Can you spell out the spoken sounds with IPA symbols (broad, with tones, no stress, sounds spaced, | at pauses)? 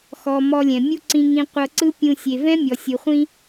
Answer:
x ɔ˨ m ɔ˧ lʲ ɛ̃˨ mʲ u˦ ǀ ĩ˧ ŋ ĩ˧ qʷ ɤ˧ ǀ ɯ˦ pʲ ũ˧ sʲ e˨ v ɛ̃˦ mʲ ɔ˨ sʲ ɯ˨ χʷ ĩ˦